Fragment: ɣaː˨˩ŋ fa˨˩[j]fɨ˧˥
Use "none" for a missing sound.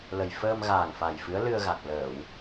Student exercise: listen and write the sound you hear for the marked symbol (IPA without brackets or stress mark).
j